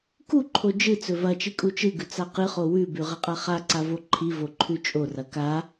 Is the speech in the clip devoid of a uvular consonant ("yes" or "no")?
no